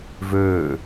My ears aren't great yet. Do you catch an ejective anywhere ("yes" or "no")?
no